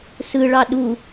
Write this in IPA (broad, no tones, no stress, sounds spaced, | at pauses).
s ɯ ɭ ɑ ɗ u